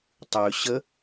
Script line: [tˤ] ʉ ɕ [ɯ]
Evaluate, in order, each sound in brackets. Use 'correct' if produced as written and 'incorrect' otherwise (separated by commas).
correct, incorrect